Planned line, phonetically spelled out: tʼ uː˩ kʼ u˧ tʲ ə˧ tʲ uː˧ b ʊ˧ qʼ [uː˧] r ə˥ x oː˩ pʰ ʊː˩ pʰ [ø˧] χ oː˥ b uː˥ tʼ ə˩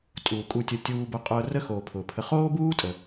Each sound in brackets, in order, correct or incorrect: incorrect: ʊː˧, incorrect: ə˧

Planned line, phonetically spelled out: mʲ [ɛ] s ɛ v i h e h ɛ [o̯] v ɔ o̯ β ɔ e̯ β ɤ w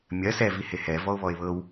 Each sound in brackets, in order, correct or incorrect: incorrect: ɜ, incorrect: none

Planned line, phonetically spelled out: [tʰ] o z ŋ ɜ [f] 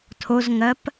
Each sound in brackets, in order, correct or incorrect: correct, incorrect: p

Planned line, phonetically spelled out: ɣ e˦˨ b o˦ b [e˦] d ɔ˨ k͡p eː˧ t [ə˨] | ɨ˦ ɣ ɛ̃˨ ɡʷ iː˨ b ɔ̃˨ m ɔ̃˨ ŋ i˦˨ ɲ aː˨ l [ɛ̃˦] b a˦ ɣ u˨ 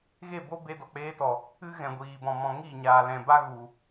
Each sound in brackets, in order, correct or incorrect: incorrect: e˧, incorrect: ɔ˨, incorrect: ɛ̃˨

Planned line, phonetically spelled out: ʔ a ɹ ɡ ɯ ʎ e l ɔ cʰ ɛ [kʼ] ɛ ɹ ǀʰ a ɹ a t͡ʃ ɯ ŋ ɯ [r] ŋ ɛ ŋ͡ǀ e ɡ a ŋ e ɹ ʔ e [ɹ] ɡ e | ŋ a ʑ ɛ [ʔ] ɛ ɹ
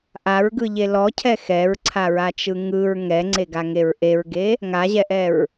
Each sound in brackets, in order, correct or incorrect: incorrect: x, incorrect: ɹ, correct, correct

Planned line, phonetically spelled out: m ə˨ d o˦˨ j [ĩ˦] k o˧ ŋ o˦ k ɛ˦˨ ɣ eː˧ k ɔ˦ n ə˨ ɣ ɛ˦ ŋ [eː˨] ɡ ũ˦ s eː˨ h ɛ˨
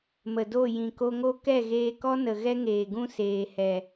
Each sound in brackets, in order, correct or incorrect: incorrect: ĩ˨, correct

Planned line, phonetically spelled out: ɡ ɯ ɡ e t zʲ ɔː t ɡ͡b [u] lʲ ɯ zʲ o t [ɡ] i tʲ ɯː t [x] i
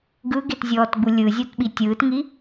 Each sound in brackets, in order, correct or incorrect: correct, incorrect: ɓ, incorrect: ŋ

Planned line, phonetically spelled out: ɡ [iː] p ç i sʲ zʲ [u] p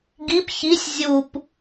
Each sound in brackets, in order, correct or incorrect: incorrect: i, correct

